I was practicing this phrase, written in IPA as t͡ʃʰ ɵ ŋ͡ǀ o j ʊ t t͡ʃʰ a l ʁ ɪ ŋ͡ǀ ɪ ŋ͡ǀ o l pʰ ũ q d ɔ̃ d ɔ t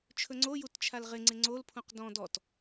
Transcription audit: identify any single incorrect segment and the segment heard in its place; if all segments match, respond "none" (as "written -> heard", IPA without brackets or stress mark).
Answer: ʊ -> u